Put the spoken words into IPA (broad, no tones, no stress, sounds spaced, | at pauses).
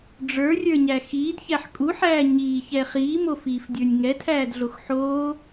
ɖ͡ʐ ə˞ rʲ ə˞ ɲ æ x iː d ç æ ħ kʼ u ħ æː ɲ iː ç ɛ χ iː m o f iː f dʲ ə˞ nʲ ŋ ɛ tʰ æː d ɮ o x ħ oː